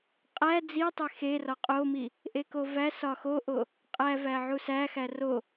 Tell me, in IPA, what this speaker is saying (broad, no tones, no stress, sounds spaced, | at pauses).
qʼ æ d͡z i tˤ e x e r ɒ qʼ o m i | ʔ e k o v æ s ɒ x o ʔ o | qʼ æ v æ ʕ u s æ x æ r o